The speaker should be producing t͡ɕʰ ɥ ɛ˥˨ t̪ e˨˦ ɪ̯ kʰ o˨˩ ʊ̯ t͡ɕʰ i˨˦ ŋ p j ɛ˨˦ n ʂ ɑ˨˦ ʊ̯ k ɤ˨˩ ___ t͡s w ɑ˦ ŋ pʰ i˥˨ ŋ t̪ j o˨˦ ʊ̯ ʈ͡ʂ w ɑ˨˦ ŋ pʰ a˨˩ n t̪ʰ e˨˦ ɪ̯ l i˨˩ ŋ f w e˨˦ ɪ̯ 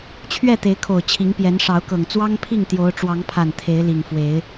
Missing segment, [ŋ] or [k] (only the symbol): ŋ